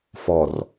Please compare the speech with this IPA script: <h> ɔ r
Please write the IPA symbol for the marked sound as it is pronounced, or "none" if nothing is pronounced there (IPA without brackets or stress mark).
f